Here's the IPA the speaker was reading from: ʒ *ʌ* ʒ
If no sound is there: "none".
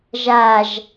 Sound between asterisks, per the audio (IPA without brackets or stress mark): a